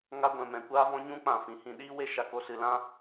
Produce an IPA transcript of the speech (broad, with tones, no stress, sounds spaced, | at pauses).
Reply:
ŋ a˦ ɡʷ ɛ̃˨ m ɛ̃˨ kʷ aː˦ v ɔ̃˦ ɲ ũ˦ k͡p ã˨ f ĩ˨ h ĩ˧ ɗ iː˦ w e˦ ʃ a˨ k o˧ s ɨ˨ l ã˦